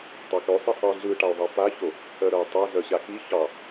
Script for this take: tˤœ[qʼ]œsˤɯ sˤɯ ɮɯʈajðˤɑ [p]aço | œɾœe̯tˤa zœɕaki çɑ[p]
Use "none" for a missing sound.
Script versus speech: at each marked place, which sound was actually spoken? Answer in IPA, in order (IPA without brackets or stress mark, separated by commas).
k, p, none